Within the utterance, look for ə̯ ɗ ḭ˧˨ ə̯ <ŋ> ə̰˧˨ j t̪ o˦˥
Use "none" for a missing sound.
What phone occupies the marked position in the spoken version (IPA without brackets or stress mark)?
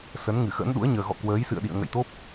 ŋ